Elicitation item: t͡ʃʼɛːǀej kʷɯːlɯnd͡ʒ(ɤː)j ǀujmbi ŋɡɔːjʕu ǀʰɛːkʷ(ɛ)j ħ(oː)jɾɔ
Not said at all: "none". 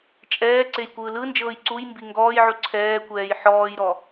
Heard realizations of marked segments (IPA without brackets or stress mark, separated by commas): ɤː, ɛː, ɔː